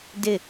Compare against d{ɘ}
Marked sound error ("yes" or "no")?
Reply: no